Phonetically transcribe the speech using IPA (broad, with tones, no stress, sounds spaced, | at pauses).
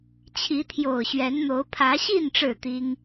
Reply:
t͡ɕʰ i˨˦ t̪ʰ j o˨˩ ʊ̯ ɕ ɥ ɛ˨˦ n n̪ o˨˦ ʊ̯ pʰ ä˨˦ ɕ i˥˨ n ʈ͡ʂ ɻ̩˥˨ t̪ i˦ ŋ